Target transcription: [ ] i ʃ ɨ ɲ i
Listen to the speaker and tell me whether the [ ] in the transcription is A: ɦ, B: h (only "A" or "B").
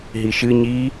A